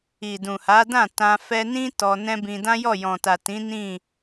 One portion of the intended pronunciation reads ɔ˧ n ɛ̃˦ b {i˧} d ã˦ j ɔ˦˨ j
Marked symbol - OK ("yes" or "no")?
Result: no